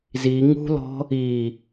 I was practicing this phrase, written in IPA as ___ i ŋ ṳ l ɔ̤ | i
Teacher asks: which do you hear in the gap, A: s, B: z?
B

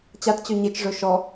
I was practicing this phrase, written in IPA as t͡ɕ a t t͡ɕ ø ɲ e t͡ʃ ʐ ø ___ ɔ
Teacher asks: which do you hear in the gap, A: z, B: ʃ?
B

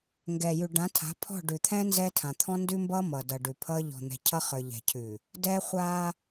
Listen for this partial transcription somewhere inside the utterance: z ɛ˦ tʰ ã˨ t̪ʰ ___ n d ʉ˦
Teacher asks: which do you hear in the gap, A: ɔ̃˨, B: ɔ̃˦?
B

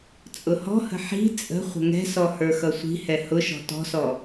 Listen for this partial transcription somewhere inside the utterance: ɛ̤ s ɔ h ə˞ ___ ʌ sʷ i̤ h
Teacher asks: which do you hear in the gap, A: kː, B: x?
B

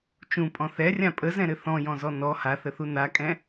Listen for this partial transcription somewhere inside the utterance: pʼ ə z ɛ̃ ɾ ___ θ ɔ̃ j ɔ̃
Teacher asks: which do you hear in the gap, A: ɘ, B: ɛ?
A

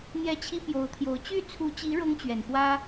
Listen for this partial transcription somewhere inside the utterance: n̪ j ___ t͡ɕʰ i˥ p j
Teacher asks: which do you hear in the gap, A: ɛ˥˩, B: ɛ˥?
A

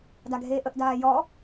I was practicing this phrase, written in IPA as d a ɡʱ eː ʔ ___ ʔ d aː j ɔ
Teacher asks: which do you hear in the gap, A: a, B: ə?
B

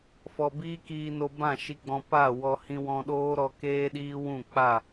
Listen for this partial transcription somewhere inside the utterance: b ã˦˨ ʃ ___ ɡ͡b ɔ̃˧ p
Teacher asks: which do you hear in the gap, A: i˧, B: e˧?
A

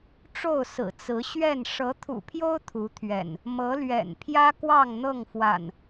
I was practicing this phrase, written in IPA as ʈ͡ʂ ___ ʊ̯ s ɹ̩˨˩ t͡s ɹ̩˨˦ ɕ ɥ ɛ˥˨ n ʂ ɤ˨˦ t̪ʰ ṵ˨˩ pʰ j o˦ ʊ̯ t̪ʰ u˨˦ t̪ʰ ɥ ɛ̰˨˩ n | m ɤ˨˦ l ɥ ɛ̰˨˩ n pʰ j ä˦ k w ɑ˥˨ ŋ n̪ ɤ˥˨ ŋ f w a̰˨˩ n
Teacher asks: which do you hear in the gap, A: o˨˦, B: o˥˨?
B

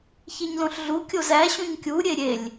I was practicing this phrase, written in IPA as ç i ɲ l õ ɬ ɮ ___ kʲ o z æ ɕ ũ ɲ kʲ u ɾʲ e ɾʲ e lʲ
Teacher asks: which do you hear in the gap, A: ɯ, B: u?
B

